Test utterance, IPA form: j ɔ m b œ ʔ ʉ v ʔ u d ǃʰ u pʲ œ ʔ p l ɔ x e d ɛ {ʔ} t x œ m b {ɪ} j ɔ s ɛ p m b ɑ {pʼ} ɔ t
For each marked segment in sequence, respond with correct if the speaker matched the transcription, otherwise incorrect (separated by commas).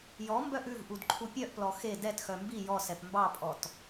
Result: incorrect, incorrect, correct